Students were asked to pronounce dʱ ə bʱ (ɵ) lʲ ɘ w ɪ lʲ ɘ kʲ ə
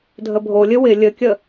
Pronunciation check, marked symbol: incorrect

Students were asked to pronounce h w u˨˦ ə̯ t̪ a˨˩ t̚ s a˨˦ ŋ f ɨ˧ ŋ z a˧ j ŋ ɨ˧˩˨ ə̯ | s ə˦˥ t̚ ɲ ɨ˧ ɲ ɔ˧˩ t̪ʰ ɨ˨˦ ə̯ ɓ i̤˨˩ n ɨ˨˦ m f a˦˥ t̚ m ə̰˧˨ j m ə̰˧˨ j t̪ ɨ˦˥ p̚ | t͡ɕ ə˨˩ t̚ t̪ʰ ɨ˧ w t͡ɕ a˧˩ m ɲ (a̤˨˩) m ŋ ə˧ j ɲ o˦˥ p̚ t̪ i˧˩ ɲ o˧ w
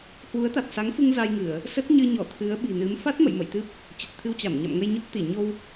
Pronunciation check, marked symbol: incorrect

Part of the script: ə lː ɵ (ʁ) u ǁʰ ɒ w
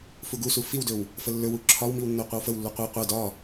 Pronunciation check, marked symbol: incorrect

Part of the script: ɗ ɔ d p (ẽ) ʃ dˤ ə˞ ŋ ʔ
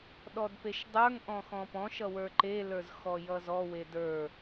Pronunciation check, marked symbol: incorrect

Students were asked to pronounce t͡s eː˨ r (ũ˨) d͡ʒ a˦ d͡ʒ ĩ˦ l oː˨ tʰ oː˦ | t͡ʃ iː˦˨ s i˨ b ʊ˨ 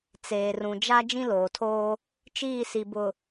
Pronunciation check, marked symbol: correct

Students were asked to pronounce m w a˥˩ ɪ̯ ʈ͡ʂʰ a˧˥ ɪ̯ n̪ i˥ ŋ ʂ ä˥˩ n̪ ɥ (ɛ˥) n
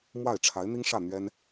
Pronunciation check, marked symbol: correct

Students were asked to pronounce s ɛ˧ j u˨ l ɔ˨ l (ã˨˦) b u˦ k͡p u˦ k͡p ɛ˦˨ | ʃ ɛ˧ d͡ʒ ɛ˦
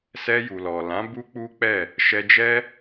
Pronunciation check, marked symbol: correct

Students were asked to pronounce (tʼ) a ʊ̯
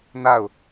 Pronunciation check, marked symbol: incorrect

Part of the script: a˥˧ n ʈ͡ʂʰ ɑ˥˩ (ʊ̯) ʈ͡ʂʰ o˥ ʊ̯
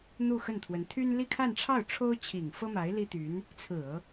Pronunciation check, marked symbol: correct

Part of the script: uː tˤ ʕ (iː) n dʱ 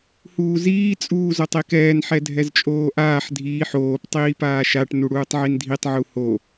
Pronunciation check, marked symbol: incorrect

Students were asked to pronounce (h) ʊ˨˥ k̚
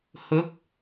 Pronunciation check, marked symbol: correct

